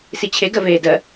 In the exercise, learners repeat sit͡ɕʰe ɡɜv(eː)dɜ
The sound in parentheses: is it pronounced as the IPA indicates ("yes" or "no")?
yes